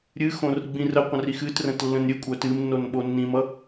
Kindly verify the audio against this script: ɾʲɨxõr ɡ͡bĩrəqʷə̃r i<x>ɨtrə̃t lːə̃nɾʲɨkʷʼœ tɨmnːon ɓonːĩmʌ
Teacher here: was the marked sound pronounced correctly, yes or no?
yes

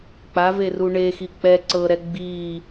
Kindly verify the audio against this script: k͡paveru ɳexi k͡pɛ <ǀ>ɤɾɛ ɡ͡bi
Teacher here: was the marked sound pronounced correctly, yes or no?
yes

